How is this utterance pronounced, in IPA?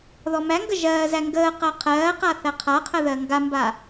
ð ɔ m æ ŋ ɡ ə ʒ ɜː z æ ŋ ɡ əː q ɜ qʰ ɜː q a θ æ qʰ a qʰ ə ð ɜ ŋ ɡ a m b a

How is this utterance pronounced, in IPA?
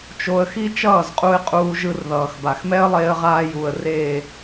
t͡ʃ o˧ ə̯ x i˦ t͡ʃ ʌː˦˨ z qʼ u˧ ɪ̯ qʼ uː˧ ʒ ɯ˧ r ð ʌː˨ x b a˨ x m ɛ˦ ə̯ lˠ eː˧ ə̯ ʁ aː˧ j u˨ ə̯ r eː˨

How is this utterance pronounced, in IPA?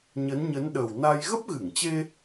ɲ ə˨˦ n ɲ ə˨˦ n ɗ ə˨˩ w n a˧ j ɣ ə˦˥ p̚ ɣ ɨ˧˩ ŋ t͡ɕ e˧

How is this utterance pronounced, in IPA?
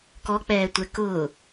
k ɔ k͡p ɛː tʷ ɛ k ʊː

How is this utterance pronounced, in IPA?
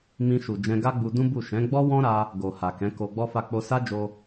m ĩ˧ ʃ u˨ d͡ʒ ɛ̃˧ ɡ a˦ ɡ͡b u˧ d ũ˦ b u˦˨ ʃ ɛ̃˨˦ ɡ͡b ɔ˦ w ɔ̃˦ ɾ a˧ | ɡ o˨ h a˨ k ɛ̃˨˦ k o˧ ɡ͡b ɔ˦ f a˦˨ k͡p o˧ s a˦ d͡ʒ o˧

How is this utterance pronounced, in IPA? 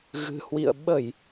ɣ ɨ̤˨˩ h w ḭ˧˨ ə̯ ɓ ə˧˩˨ j

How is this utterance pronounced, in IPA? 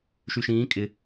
ʃ y ʃ ĩː kʼ ɪ

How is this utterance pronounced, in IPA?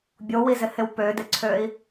bʲ o w i z ɪ h ɪ w p ø d ɪ ǀʰ ø i̯

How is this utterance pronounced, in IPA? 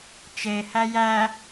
t͡ʃ e h æ j æ

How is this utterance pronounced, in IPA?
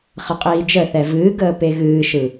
χ ə qʼ iː d͡ʒ ə θ ɛ v ɨː ɡ əː p e ɣ ɨː ʃ ɯ

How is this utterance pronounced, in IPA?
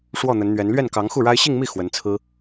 ʂ w ɔ˥˩ n̪ ə˧˥ n n̪ ɥ ɛ˧˥ n l ɥ ɛ˥˩ n k ɑ˧˥ ŋ x u˥˩ ɻ a˥ ɪ̯ ɕ i˥˧ ŋ m i˥˩ x w ə˧˥ n t͡sʰ ɹ̩˥

